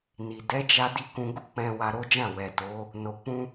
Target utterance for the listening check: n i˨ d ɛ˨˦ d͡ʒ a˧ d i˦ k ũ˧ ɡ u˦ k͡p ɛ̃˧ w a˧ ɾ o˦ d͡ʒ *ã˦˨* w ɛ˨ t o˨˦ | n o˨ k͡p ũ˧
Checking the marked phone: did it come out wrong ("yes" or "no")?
no